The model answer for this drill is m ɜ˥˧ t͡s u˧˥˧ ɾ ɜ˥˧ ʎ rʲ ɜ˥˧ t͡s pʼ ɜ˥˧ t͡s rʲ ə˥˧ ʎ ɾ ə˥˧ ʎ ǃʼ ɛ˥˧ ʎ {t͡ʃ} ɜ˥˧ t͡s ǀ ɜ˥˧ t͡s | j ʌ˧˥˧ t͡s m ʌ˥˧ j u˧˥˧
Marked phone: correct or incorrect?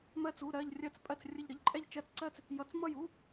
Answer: correct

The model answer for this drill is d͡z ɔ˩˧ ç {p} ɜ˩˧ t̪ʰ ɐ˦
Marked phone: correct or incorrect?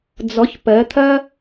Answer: correct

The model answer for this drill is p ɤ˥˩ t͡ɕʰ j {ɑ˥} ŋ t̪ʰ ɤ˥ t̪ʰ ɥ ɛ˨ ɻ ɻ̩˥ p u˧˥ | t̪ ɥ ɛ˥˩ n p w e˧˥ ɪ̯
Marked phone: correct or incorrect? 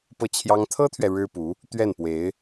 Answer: correct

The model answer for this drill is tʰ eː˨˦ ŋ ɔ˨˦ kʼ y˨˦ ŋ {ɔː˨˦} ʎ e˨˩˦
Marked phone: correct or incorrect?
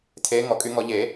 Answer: incorrect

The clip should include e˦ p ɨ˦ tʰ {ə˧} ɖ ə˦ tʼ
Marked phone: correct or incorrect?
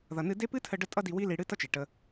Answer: correct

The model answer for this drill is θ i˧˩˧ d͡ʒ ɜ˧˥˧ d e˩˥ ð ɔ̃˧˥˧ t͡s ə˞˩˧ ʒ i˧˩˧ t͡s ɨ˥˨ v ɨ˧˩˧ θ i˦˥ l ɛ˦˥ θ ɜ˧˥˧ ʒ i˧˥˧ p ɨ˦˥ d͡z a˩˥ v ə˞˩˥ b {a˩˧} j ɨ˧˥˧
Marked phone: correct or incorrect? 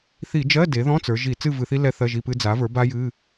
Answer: incorrect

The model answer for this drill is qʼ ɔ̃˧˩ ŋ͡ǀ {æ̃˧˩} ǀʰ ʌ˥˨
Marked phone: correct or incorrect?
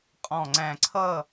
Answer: correct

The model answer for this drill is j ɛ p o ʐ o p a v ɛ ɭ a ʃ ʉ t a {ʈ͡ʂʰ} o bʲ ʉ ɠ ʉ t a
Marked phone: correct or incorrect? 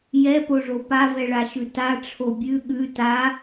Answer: correct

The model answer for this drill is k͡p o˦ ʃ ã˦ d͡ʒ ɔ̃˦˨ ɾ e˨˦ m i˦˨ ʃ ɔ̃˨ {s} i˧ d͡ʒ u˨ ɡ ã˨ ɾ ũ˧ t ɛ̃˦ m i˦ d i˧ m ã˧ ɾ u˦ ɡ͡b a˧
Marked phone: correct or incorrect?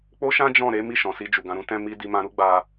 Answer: correct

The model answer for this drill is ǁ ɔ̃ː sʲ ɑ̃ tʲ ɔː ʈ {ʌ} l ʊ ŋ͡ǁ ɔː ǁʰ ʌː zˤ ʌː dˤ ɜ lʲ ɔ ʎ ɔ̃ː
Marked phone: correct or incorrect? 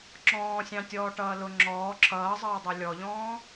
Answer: incorrect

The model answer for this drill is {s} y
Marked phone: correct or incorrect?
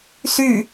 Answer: correct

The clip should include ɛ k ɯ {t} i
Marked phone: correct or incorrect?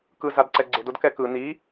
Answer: incorrect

